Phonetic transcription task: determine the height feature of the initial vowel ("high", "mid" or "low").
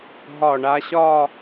low